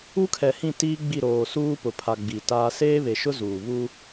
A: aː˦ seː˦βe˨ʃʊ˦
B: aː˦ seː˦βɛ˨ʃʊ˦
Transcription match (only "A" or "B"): A